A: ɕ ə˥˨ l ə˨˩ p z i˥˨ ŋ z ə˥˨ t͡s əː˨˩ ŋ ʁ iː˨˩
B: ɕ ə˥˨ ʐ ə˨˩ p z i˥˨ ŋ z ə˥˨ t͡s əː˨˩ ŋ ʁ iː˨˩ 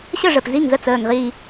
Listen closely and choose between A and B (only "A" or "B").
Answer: B